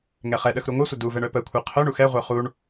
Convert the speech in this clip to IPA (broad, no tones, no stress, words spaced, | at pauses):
ŋɛχɛɗəx ɾuŋʷɛsʷə duvɛɳ œpəkʷʰɛ qʰœɳ uxɛʁʷœ χuɳ